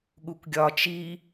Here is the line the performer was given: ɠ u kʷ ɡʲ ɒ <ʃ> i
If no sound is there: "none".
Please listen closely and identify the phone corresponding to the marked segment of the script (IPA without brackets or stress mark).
t͡ʃ